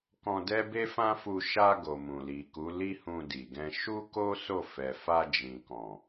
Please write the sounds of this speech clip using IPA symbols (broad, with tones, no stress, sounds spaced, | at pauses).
k ɔ̃˧ d ɛ˦ b e˦ f ã˦ f u˧ ʃ a˧ ɡ o˨ m ũ˨ l i˨ k u˨˦ l i˦ h ũ˧ d i˨ ɡ ɛ̃˧ ʃ u˦ k o˦ s o˦˨ f ɛ˨ f a˧ d͡ʒ ĩ˨ k ɔ̃˨